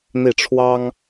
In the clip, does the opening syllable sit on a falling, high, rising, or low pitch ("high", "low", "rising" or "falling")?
falling